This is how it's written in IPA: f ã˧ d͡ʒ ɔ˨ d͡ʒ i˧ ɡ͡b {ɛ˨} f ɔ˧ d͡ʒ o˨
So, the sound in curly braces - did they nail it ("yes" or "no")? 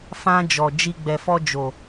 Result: yes